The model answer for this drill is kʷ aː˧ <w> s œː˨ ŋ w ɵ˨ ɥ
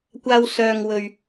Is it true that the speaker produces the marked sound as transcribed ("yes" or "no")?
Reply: yes